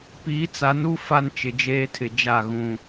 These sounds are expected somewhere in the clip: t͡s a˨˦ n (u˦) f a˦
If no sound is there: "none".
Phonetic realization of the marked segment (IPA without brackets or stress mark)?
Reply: u˦